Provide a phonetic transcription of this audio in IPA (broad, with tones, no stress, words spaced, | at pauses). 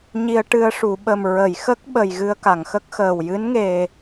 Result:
ɲi˧ə̯ʈɨ˧ə̯ʂu˨˩˨ ɓə˨˩mɹə˨˩˨jxə˦˥k̚ɓə˨˩j ɣɨ˧ə̯ka˨˩˨ŋxə˦˥k̚xəː˨˩w jɨ˧˥nŋe˨˩